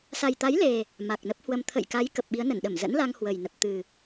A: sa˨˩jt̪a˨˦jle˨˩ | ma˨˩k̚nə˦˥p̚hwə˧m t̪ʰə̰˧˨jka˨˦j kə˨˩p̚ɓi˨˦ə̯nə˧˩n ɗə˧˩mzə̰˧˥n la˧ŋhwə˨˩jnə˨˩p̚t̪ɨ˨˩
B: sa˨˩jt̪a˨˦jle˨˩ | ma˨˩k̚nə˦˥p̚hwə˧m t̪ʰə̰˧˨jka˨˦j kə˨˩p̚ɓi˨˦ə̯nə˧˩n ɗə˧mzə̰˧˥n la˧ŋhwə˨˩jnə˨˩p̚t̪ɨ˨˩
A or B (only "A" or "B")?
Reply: A